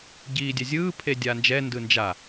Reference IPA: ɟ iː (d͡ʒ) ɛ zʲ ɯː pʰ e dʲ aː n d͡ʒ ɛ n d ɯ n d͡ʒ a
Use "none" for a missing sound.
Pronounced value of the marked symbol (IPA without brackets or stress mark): dʲ